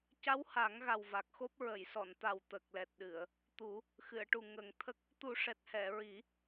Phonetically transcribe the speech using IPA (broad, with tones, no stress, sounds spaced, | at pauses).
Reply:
c a˧˥ w h a˨˩˦ ŋ ɣ a˨˩ w v a˨˩ k̚ x o˦˥ p̚ ɹ ə˨˩˨ j s ɔ˨˩˨ n t̪ a˨˩ w t̪ ə˨˩ k̚ l ɛ˨˩ t̚ ɗ ɨ˨˩˨ ə̯ | t̪ u˨˩˦ | x ɨ˨˩˨ ə̯ ʈ u˨˩ ŋ ə˨˩˦ ŋ t̪ʰ ə˦˥ k̚ | t̪ u˨˩˦ ʂ ɛ˨˩ t̚ h ɛ˨˩˨ ɹ i˨˩˦